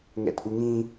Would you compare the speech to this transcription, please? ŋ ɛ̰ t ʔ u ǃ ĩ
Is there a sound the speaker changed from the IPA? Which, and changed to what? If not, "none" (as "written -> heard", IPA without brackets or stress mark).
ǃ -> ŋ